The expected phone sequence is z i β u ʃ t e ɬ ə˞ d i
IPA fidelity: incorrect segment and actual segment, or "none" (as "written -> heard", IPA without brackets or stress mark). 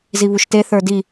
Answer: ɬ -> θ